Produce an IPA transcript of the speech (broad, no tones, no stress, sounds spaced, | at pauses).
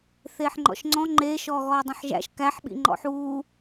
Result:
θ eː ħ ŋ͡ǃ ɔ̰ ʃ ŋ͡ǀ ɔ̃ ŋ͡ǃ eː ʃ ɔː ɣ ɔː dˤ õ ħ ʒ æ̰ ʃ k æ ħ ɓ ḭ ŋ͡ǃ ɔ̰ ħ uː